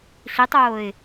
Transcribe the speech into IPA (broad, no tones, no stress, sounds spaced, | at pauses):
ɬ i tˤ oː ɪ̯